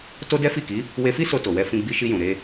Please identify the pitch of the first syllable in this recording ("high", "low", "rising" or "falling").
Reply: high